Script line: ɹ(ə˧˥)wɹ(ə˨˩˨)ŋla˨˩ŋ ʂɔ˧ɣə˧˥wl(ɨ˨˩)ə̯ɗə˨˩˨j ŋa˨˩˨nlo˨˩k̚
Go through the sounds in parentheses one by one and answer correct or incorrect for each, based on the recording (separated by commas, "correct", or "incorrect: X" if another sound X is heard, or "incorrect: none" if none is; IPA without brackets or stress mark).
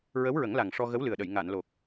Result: correct, incorrect: ə˨˩˦, correct